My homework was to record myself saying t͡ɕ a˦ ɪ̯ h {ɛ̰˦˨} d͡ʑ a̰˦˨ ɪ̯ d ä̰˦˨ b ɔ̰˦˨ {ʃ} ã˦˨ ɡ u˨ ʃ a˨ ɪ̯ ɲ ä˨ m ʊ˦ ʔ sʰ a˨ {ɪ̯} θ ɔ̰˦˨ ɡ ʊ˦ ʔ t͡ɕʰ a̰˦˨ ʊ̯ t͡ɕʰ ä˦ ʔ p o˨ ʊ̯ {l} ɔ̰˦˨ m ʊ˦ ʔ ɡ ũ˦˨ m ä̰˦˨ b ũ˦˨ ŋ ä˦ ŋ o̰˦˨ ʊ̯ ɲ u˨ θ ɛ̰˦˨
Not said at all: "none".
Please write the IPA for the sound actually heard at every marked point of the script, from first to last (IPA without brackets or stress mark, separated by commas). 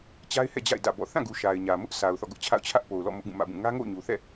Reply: ɛ̰˦˨, θ, ʊ̯, l